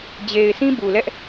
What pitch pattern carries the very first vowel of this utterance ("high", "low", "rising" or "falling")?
low